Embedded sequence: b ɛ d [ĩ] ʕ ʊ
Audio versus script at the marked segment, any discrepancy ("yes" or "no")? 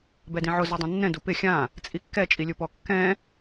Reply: no